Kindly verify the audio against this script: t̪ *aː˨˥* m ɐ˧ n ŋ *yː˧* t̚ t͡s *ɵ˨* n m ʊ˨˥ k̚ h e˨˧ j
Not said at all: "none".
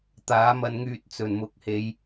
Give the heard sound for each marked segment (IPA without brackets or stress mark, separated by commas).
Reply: aː˨˥, yː˧, ɵ˨˩